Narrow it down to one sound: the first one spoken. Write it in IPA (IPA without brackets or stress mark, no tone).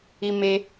i